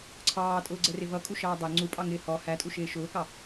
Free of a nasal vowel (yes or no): yes